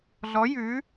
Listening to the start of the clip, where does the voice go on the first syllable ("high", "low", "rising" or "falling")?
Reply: rising